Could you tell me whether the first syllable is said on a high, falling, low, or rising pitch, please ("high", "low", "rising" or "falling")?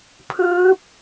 rising